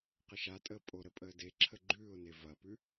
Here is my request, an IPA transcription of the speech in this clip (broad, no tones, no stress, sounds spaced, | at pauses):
q ə ʃ a tʼ əː pʼ o ɾ ə pʼ əː d e ǁʰ ə ɡ͡ǃ ʉː ʊ̯ n e v ɐ p ʉ